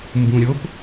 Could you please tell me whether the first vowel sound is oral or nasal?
nasal